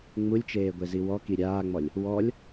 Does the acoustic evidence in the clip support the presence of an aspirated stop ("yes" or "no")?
no